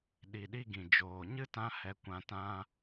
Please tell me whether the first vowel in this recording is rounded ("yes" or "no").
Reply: no